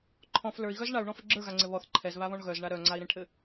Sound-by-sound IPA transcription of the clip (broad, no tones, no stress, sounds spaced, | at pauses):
ǃʰ ɔ̃ f l ə˞ i̯ ɣ œ z ɳ a u̯ ɳ ɔ̃ f ɘ ɡ͡ǁ ə˞ ɣ a ŋ͡ǀ ɘ β ɔ θ ǃʰ ɛ z β a β ɔ̃ ɳ ɣ œ z ɳ a ɾ œ ŋ͡ǀ a i̯ ɾ ẽ ʈʰ ɘ